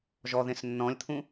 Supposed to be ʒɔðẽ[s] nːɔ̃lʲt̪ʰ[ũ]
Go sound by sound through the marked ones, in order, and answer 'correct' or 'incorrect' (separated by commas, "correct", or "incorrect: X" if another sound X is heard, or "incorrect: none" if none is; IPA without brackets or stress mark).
correct, correct